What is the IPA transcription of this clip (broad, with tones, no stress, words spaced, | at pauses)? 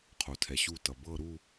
qʰo˩tʰɛ˩ɕu˧˩tʌ˩ bɤ˧˩ ɾu˧˩